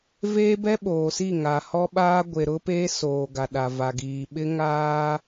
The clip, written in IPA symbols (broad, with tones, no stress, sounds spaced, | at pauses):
v eː˦ b ɛ˦ ɓ oː˨ s i˦˨ ŋ a˨ h ɔ˦ ɓ aː˦ ɡʷ e˨ ɾ ʊ˦ p e˦ s oː˨ ɡ a˨ ɗ a˨ v a˨ ɡ iː˨ ɓ ɪ˦ ŋ aː˦